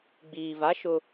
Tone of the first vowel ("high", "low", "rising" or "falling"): low